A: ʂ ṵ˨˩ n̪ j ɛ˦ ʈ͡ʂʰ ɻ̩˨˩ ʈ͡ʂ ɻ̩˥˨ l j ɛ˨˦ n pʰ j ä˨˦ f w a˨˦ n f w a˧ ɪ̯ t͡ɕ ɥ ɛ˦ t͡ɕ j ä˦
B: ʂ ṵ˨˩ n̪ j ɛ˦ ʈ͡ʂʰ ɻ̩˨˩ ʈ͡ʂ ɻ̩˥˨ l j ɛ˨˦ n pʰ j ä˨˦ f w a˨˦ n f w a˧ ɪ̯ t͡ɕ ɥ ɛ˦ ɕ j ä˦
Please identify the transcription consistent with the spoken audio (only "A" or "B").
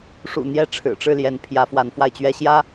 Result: B